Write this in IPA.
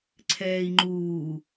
ǀʰ ɛː i̯ ŋ͡ǃ uː

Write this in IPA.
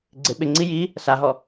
ɡ͡ǀ ɪ ɓ ɪ ŋ͡ǀ i j i | s a ɦ ɔ

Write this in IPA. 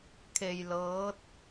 kʰ e˧ j l ɤː˧˥ t̚

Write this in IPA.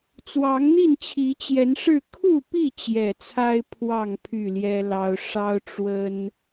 t͡s w ɑ˨˦ ŋ n̪ i˥˨ n t͡ɕʰ i˨˦ t͡ɕ j ɛ˨˦ n ʂ ɻ̩˥˨ kʰ u˥˨ p i˥˨ t͡ɕ j ɛ˨˩ t͡sʰ a˦ ɪ̯ pʰ w ɑ˥˨ ŋ pʰ y˥˨ l j ɛ˦ l ɑ˦ ʊ̯ ʂ ɑ˦ ʊ̯ ʈ͡ʂ w ə˦ n

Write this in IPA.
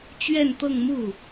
t͡ɕ ɥ ɛ˥˧ n t̪ ɤ˥˧ ŋ m u˥˩

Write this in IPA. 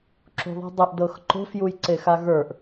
ǁ ṳ ðˤ e̤ dˤ ʏ ʔ d ɤ x ǃ o̤ f j u j ǀ e x a ɣ ə˞ ʔ

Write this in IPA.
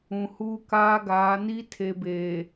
ũ˨ h uː˦ k aː˦ ɡ aː˨˦ n i˦ tʰ e˨ b eː˨

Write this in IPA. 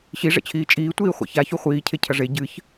ɕ i ʐ ɛ̰ t͡ɕʰ iː t͡ʃʼ iː tʷ iː χʷ ḛ ç a ç u χʷ iː cʰ e cʰ ɐ ʐ e ɟ ɨ ç

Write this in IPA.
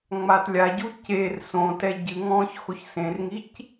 ŋ͡m a t lʲ a ɟ u c e r s õ t ɛ ɟ ɨ ŋ ɔ̃ː ç x o ç s ẽ r ŋ i c

